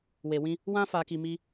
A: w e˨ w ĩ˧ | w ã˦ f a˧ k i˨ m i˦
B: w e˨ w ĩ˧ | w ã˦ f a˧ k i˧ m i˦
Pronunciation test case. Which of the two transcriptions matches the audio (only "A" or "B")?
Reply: B